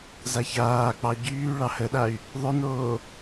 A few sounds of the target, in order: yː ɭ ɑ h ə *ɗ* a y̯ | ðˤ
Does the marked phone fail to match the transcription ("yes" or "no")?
no